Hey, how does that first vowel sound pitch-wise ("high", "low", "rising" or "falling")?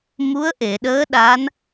rising